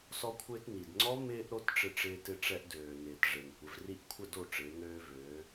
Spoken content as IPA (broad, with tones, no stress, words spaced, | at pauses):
sɔ˧kʷʰɪː˧t ni˩dŋ͡ǀɔ˦˥ mɪː˧ʔ ɾo˦˥tʈ͡ʂɪ˧ʈ͡ʂɪː˧ tɪ˧ʈ͡ʂɛ˧ʔ døː˩ nɪː˩tʐe˩ŋ kʷɪ˩˧vri˥˨ʔkʷʰə˥˨do˥˨ ʈ͡ʂɪː˩˧ŋøː˧vøː˩˧